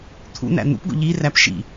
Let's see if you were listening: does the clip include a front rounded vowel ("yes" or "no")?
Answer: no